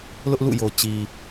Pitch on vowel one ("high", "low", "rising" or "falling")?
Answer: high